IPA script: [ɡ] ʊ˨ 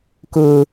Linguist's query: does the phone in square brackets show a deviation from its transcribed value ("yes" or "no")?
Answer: yes